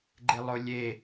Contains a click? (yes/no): yes